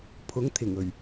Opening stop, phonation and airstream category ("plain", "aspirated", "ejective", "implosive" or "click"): aspirated